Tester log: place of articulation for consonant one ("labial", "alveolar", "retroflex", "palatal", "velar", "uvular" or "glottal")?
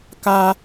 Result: velar